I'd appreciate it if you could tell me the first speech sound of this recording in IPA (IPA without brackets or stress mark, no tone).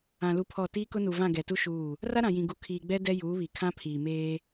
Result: ã